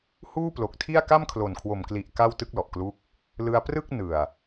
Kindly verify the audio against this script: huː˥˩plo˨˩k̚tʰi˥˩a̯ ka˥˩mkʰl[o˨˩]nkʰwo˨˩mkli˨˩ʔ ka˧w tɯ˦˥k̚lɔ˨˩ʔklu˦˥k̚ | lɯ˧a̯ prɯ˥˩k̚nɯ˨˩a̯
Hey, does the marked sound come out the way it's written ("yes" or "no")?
yes